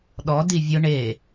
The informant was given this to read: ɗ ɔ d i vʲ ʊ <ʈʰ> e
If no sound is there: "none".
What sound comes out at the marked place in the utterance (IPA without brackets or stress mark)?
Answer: ɳ